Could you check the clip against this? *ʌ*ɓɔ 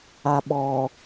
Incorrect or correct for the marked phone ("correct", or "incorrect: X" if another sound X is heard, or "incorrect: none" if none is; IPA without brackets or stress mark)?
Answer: incorrect: a